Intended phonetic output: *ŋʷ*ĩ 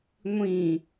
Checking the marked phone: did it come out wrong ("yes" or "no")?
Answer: no